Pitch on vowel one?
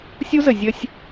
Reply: high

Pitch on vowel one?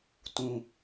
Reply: low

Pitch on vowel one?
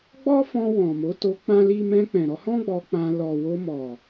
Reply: high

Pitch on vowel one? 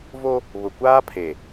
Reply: high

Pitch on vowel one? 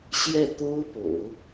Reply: falling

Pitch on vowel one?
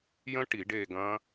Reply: high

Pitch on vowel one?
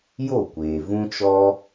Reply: falling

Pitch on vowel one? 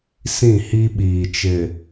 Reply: falling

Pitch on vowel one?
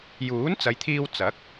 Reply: rising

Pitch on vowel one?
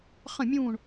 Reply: falling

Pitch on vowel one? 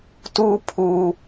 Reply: high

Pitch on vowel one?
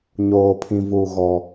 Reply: low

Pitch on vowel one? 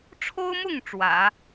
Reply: high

